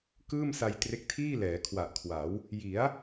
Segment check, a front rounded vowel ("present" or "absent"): absent